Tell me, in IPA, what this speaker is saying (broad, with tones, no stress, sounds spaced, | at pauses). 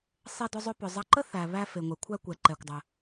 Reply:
sˤ e˧ d ʏ˧ zˤ ʏ˧ p ʏ˩ zˤ ɐ˧ ǃ ə˥ θ æ˩ β æ˧ f e˩ ŋʷ ɛ˩ kʷʰ æ˧ kʷ ɛ˩ ǃ ɛ˩ kʷ dˤ ə˩